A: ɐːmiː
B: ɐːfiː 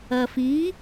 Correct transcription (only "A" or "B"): B